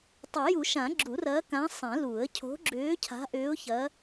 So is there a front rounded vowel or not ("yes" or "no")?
yes